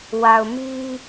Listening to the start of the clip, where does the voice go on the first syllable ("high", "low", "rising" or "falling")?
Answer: low